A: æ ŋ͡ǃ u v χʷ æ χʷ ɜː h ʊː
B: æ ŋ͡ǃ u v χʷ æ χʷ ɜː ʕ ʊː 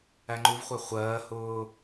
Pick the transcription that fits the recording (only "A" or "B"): A